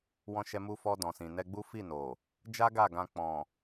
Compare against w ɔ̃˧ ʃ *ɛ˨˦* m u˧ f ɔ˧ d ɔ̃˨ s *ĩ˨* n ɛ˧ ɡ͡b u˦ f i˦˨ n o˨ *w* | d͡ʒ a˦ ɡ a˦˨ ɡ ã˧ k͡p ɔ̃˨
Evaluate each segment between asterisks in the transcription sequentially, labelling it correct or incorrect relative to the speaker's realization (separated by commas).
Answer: incorrect, correct, incorrect